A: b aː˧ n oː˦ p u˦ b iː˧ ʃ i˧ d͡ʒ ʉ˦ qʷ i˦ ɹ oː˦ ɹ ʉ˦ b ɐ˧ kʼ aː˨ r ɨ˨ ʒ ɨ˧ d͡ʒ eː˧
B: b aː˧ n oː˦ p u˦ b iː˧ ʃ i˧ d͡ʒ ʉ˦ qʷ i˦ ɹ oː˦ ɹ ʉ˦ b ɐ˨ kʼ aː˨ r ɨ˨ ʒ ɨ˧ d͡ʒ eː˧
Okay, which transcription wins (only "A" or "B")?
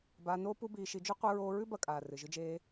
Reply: A